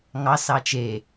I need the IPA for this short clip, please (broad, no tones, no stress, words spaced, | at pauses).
ŋɑs ɑt͡ʃe